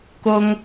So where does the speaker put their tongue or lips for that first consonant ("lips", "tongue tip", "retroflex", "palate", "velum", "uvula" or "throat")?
velum